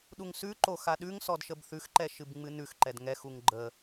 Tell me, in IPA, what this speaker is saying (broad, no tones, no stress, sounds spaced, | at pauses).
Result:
ɗ u ŋ s ʉ ǃ o x a ɗ ʉ ŋ s ɔ d ʃ ə b θ ʉ x ǃ ɛ ʃ ɨ b ŋ͡m ɨ n ʉ x ǃ ɛ d ŋ ɛ x u ŋ ɡ͡ǃ ə